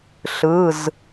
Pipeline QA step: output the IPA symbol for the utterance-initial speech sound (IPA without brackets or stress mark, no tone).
ɬ